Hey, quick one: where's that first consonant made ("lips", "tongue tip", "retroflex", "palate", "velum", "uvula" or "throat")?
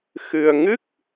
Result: velum